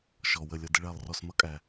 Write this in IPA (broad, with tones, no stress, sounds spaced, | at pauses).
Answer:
ʃ ɔ˨ w ə˦˨ lʲ ʌ˦˨ d ə˥ ɭ æ˦˨ lˠ r ɔ˦˨ s m ʌ˥ kʼ æ˨